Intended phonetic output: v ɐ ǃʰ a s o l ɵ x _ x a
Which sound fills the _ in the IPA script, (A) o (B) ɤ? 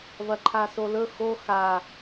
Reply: A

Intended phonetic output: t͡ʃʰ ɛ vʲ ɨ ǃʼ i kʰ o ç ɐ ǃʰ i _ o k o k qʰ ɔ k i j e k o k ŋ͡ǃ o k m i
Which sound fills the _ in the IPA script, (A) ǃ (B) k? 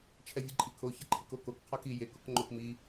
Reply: B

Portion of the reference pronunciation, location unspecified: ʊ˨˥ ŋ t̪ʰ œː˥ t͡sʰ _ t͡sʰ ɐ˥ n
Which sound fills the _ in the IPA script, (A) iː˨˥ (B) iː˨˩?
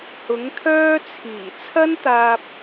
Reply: B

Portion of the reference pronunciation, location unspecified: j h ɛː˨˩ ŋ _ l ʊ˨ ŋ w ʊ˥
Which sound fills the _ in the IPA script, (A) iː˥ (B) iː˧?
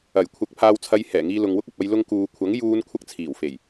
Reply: B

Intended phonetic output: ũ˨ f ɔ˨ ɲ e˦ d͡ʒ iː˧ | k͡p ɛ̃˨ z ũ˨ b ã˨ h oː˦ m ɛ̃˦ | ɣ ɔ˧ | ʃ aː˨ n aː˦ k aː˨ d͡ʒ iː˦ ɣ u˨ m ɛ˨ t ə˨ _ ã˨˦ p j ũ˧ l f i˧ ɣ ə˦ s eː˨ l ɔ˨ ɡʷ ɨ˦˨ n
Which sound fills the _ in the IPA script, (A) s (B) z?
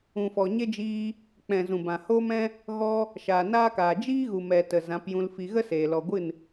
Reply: B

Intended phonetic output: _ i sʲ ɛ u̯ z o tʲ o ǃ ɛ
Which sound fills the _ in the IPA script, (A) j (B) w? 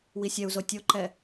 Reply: B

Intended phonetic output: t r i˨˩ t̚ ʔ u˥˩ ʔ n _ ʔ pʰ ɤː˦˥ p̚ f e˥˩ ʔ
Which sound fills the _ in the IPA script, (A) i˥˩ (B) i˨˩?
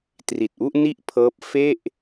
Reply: A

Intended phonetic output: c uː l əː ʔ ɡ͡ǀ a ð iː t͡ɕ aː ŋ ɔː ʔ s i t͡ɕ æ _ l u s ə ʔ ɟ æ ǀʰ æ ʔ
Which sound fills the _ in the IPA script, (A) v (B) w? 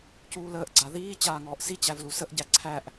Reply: A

